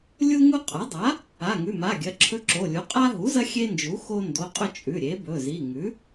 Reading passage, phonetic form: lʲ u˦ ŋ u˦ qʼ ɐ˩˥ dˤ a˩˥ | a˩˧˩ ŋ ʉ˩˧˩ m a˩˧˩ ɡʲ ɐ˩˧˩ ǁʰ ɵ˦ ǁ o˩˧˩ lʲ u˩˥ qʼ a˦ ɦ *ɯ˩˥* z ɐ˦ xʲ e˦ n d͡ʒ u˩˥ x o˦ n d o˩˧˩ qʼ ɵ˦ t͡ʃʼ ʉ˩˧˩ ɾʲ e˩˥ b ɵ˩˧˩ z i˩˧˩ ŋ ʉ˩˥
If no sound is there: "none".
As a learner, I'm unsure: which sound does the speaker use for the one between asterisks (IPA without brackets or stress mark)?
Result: u˩˥